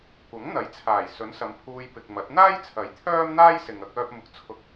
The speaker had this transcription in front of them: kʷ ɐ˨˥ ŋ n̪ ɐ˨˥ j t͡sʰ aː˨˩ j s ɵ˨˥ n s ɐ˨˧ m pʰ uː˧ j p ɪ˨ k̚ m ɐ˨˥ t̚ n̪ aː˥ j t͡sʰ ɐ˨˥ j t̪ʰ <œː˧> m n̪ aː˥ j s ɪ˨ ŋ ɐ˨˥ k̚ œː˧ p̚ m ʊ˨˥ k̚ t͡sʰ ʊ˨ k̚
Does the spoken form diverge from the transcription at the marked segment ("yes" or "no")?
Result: yes